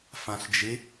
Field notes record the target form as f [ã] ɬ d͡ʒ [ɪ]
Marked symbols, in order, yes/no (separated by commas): yes, yes